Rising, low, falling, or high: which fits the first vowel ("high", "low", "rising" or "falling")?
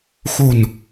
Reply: low